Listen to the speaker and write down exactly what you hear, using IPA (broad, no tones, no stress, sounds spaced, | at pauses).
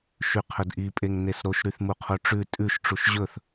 ʃ y qʰ ɵ d ʔ i pʼ e ŋ n e s ɾ o ʃ ɾ y θ m u qʰ o ʈ͡ʂ ʉ tʼ ʉ ʃ ʈ͡ʂ u ʃ ʑ ɵ θ